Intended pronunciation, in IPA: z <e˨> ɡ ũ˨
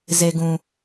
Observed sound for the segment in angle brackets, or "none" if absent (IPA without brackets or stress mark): e˨